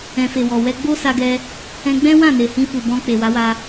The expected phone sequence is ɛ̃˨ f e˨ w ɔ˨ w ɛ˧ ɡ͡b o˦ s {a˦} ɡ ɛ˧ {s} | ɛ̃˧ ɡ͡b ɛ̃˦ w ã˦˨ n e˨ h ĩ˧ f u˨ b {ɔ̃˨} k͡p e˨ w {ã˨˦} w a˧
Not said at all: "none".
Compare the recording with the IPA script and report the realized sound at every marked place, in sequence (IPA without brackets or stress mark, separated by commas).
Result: a˧, none, ɔ̃˧, a˨˦